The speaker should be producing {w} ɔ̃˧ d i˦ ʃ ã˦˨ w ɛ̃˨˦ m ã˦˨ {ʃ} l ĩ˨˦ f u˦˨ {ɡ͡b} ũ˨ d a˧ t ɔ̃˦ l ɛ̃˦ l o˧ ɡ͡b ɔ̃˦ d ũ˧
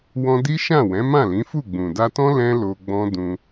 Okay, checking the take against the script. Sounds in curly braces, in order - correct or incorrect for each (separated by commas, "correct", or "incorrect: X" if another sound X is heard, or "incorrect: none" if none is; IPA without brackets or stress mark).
correct, incorrect: none, correct